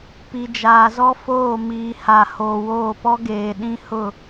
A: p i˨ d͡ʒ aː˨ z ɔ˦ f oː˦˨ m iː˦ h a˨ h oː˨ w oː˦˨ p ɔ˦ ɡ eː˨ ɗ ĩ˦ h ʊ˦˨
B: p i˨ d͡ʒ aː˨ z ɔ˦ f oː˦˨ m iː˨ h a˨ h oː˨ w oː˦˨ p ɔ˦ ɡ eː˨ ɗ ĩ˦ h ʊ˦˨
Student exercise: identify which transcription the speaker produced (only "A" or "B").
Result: B